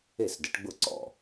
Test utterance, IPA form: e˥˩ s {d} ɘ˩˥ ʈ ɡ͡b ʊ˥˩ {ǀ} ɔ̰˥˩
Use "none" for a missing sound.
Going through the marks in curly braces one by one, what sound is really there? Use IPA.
d, ǀ

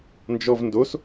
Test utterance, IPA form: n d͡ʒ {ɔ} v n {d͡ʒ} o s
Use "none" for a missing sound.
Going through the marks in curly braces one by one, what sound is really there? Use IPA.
ɔ, d

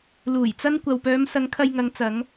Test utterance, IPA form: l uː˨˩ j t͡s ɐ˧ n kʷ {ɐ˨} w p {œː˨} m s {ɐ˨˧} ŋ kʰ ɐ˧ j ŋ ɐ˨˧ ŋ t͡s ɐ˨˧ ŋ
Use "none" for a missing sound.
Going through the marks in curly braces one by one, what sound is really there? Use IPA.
ɐ˨, œː˨˧, ɐ˨˧

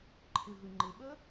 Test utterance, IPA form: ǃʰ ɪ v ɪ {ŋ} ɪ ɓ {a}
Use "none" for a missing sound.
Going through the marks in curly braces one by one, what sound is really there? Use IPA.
ŋ͡ǃ, ə

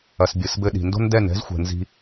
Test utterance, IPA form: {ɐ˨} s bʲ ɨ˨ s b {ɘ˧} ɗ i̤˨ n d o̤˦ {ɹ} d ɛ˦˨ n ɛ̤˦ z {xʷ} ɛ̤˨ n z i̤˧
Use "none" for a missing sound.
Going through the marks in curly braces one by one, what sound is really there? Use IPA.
ɐ˨, ɘ˧, n, xʷ

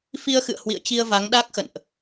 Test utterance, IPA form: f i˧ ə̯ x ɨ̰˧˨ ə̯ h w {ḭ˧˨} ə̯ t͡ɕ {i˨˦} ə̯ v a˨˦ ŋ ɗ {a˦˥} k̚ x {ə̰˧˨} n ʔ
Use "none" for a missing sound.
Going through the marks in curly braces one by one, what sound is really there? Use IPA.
ḭ˧˨, i˧, a˦˥, ə̰˧˨

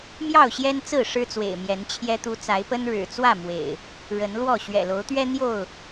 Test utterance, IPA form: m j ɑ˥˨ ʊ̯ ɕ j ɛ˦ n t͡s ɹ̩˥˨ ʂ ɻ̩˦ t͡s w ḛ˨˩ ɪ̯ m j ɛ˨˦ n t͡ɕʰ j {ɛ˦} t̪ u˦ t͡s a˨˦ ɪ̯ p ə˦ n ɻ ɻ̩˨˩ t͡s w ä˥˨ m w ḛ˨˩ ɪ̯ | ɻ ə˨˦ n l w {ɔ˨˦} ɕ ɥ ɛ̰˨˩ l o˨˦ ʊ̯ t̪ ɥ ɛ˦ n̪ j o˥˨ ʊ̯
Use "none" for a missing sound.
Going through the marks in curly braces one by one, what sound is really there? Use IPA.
ɛ˦, ɔ˥˨

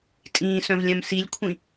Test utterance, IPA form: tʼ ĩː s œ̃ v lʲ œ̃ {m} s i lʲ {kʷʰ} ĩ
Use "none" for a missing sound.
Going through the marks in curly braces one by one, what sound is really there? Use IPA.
m, kʷʰ

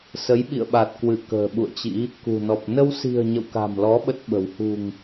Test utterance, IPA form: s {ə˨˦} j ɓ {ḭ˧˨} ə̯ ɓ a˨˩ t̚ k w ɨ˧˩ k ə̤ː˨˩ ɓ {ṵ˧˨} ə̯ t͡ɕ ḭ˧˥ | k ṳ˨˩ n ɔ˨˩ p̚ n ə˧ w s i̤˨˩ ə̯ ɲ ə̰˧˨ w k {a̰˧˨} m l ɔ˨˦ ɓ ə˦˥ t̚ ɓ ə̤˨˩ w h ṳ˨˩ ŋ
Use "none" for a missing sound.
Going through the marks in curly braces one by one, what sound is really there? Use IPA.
ə˨˦, ḭ˧˨, ṵ˧˨, a̤˨˩

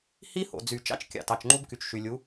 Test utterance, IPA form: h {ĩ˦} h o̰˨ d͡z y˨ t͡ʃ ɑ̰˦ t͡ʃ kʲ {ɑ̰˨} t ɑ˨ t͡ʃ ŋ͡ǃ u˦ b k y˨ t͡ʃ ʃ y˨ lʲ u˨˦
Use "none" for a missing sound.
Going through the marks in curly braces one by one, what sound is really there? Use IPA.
i˦, ɑ̰˨

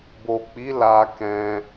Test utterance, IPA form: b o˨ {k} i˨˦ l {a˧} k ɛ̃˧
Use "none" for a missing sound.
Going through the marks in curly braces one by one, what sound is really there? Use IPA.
k͡p, a˧

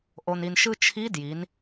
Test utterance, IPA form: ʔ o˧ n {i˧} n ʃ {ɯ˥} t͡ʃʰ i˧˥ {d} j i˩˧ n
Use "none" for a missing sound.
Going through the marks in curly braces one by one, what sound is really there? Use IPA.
i˧, ɯ˥, d

